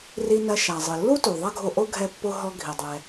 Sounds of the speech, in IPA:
ri˧nɐ˧ ʃa˩zˤɨ˩lːu˥ tu˩ðˤɐ˥ɡʱo˧ʔo˥ ɡʱɛ˧pːo˧ ɦɔ˧ ɡʱi˩ dˤɛ˩

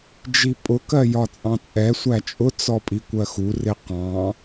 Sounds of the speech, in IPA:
d͡ʒipʼʊkɜ jɒt͡sʼɑ̃t͡sʼɛsʷæ t͡ʃʼʊt͡sɔpʼi kʷɜxurɪ qɑ̃

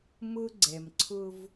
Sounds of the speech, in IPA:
mʊ˦ ɡ͡ǀɛ˨mǀʰʊ˦v

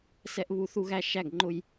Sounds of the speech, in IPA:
sɛ˦ʔβu˦ θu˦ɣæ˦ ʃæ˦˨ɡ ŋ͡ǃʊ˦j

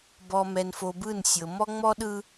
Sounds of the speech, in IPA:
bɔ˨mɛ˨n fo˨bɯ˦˨n sʲɤ˨ mɔ˦ŋ͡mɔ˦ɗɯ˦

